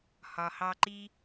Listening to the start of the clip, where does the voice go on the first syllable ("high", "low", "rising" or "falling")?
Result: low